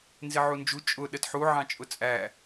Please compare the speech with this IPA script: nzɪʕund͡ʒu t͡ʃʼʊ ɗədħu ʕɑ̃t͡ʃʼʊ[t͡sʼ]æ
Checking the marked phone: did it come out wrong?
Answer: no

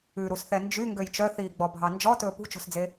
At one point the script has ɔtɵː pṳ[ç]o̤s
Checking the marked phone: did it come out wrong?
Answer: yes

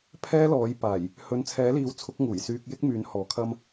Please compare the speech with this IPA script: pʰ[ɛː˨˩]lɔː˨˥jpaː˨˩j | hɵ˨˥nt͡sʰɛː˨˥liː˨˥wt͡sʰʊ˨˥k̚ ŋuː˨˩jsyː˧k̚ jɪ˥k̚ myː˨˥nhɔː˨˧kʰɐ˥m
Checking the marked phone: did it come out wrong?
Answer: yes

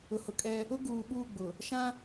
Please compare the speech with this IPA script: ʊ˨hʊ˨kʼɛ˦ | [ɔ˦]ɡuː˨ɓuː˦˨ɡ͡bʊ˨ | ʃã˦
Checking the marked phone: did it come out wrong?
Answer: yes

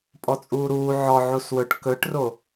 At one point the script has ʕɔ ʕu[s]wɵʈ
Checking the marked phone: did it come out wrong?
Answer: no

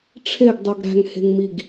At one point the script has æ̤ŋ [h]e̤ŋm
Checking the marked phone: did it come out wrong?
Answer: no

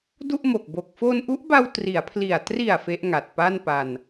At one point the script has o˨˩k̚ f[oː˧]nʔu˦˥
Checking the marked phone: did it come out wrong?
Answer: no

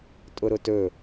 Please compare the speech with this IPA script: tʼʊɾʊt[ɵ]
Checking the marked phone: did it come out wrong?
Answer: no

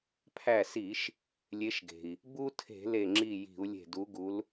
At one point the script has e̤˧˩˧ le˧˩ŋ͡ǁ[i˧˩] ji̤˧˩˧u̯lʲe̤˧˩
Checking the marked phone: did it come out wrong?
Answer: no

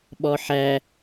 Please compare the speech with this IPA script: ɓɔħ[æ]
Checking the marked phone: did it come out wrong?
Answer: no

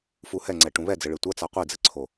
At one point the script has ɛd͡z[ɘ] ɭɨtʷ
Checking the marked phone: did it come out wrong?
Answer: no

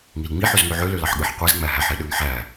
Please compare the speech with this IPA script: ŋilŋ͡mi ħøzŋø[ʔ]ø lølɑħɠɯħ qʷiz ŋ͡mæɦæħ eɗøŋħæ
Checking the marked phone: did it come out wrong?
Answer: yes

